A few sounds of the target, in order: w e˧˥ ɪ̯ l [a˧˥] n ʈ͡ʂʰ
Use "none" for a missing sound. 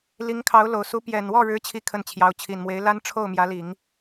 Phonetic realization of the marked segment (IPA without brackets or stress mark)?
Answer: a˥